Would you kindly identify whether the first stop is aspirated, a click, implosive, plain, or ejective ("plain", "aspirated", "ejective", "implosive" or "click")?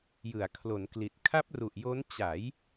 aspirated